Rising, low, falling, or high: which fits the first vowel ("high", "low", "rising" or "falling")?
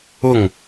falling